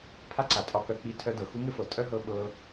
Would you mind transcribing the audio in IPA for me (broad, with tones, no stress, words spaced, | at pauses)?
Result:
pʰa˦ǀa˨tʼɒ˧kœ˧ k͡pi˧ tʰœ˦dɤ˨ xu˦ŋɘ˦fɤ˨ tʼœ˦ɦɤ˧ ɓɤ˧